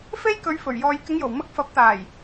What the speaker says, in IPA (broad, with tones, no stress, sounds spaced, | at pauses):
f e˥ j k ɵ˨˧ ɥ f ɵ˨˩ ɥ j ɔː˧ j k ɪ˨˧ ŋ j o˨˩ w m ɐ˧ k̚ f ɐ˨˥ p̚ t̪ aː˨˩ j